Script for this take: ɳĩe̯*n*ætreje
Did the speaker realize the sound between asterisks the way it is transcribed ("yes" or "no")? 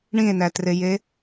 yes